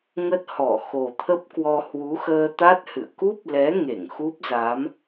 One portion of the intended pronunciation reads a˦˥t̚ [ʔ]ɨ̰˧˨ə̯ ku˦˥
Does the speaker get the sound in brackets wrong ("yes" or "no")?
yes